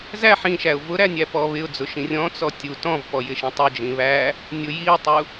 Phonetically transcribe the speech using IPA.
z æ ħ ĩ ʃ æ ʊ̯ v ʊ ɾ æ nʲ æ p ɔ β ɪ ʊ̯ d͡z ʊ ʃ ĩ rʲ ɔ̃ t͡s ɔ tʲ u t ɔ̃ v p ɔ j ɪ ʃ ĩ tˤ ʊ d͡ʒ ĩ β æ | nʲ ʊ j i ʊ̯ tˤ u

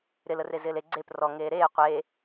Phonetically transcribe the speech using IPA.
ɾ ɪ l ə r e z ɪː l e ɡ͡ǀ e p r ɔ ŋ eː ɾ eː qʷ eː

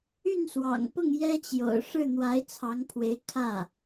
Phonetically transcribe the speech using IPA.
y˥˩ n s w ɑ̰˨˩ ŋ p ʊ˥˩ ŋ j ɛ˥ t͡ɕ j o̰˨˩ ʊ̯ ʂ ɻ̩˥˩ n̪ w a˧˥ ɪ̯ t͡sʰ ɑ˧˥ ŋ pʰ w e˧˥ ɪ̯ kʰ ä˥˩

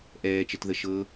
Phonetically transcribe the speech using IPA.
ʔ ɛː t͡ʃ ə t ð ə ʃ ɤ

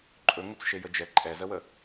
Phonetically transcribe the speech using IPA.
ǃʼ ɵ ŋ ə t͡s ʃ e j ə d͡ʒ ɛ ǃʼ ɛ z ə w ə

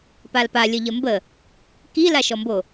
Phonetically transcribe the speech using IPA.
p a l p a lʲ ə ʎ ə m b ə | k i l a ʃ ɔ m b o

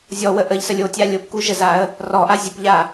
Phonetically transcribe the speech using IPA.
zʲ ɔ w ə ʔ ə ʎ s ə lʲ o tʲ a lʲ o p k u ʒ ə z a ə̯ | r ɔ ʔ a zʲ ə p ʎ a

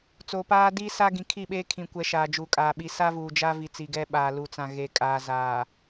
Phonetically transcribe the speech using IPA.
t͡s oː˨ p aː˦ d i˦ s a˦ ɡ ĩ˨ kʰ i˦˨ ɓ eː˦ kʰ ĩ˨ kʷ ɛ˨ ʃ aː˨ d͡ʒ uː˨ kʼ aː˨ ɓ i˨ s a˦ v uː˨ d͡ʒ a˦ v i˨ t͡s i˨ ɡ ɛ˦ ɓ a˨ l u˨ t͡s ã˨ ɣ e˨ kʼ aː˨ z aː˨

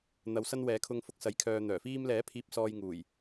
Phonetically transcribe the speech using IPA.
n̪ ɐ˨˧ w s ɐ˥ n w ɛː˨˥ kʰ ʊ˧ ŋ f ʊ˧ k̚ s ɐ˨˥ j kʰ œː˧ n̪ œː˨˩ f iː˧ m l ɛː˨˥ pʰ iː˨ p̚ s ɔː˨ j ŋ uː˨˩ j

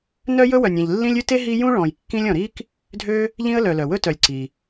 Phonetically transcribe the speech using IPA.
n œ˥ j ɵ˥ w œ˨ nʲ ẽ˨ ʎ lː ĩ˥ lʲ ʉ˥ t e˥ ɦ i˦ j ũ˥ ɭ ɔ̃˨ j kː ĩ˦ lʲ ɔ̃˨ ɾ i˥ k | dʱ ø˦ | ʎ ĩ˥ ə̯ l œ˨ l œ˩ w ɵ˥ t œ˨ lʲ ǀ i˩

